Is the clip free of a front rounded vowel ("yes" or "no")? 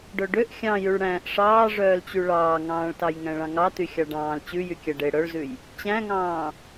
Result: no